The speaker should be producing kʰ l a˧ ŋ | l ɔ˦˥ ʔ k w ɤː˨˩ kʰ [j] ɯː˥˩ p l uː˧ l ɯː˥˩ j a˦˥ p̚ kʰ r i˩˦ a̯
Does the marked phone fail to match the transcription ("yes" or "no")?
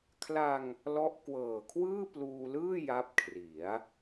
yes